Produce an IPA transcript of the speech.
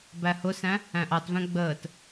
b æ h ʊ s æ̃ | æ̃ ʔ ɑ t v æ̃ ɡ͡b əː t

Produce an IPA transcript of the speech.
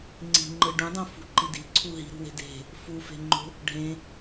ŋ͡ǀ i̤ ŋ͡ǃ ɯ ɖ ũ dˤ õ f ṳ ǃ i d i̤ ǀʰ u ɦ i̤ ɾ ṳ w e̤ d e̤ | f u f e̤ ŋ͡ǃ o̤ | ɖʱ ẽ

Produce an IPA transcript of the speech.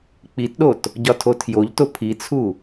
k͡p i t ɗ o t | ɟ ɒ tʰ o tʰ j o ʎ t o pʰ i t͡sʰ u

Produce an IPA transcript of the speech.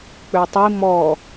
k͡p ø tˤ i m ɔ

